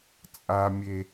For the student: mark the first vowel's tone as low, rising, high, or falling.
high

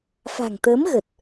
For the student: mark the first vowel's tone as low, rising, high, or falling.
low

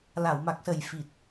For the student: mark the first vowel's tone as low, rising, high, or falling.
low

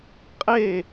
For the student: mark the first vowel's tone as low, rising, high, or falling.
falling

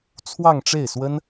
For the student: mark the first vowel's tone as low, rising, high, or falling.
falling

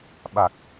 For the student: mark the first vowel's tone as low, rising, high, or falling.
low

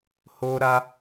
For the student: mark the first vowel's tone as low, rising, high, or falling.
high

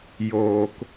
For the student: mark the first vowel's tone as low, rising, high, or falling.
low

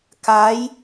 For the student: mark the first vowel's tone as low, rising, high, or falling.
rising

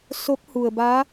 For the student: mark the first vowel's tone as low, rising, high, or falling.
rising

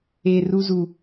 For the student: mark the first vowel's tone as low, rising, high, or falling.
low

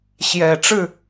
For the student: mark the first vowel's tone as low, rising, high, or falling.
low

